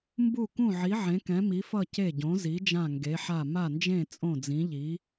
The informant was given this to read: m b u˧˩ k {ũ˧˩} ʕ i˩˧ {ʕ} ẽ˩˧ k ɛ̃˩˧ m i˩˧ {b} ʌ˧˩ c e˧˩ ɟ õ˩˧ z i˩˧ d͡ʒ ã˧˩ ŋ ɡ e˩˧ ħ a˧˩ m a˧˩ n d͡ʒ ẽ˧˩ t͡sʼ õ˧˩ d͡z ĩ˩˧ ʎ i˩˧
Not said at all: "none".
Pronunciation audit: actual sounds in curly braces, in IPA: ũ˧˩, ʕ, f

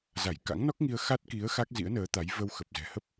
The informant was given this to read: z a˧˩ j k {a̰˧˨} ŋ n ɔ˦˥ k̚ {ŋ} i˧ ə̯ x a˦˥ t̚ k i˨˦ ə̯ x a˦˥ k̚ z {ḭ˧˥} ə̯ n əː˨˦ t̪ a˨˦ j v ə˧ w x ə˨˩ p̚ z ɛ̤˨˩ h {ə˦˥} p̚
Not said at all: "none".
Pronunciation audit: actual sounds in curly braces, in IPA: a̰˧˥, ŋ, ḭ˧˥, ə˦˥

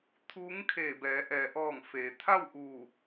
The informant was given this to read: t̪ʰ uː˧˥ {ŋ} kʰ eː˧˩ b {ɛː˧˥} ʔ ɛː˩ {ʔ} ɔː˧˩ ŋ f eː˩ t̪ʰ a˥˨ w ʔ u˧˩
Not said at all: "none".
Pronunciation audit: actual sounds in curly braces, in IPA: ŋ, ɛː˩˧, ʔ

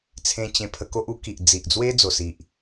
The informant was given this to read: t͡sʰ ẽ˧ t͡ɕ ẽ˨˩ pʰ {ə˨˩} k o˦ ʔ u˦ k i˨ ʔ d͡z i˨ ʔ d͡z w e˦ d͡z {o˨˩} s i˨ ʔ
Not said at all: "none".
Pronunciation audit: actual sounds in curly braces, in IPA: ə˧, o˨˩

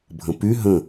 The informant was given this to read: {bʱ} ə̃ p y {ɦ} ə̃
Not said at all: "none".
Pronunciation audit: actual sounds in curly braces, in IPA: bʱ, ɦ

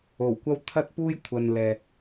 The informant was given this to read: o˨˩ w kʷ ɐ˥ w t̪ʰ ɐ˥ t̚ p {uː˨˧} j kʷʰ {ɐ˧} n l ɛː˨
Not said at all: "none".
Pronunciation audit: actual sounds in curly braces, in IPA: uː˥, ɐ˨

